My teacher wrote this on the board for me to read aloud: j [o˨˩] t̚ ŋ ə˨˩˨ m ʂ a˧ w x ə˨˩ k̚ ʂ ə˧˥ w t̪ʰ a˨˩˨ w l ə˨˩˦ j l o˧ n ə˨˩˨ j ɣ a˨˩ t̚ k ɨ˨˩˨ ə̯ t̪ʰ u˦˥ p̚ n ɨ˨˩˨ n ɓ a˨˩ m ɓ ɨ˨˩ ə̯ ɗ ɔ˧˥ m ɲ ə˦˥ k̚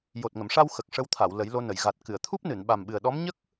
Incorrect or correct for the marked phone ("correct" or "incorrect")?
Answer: correct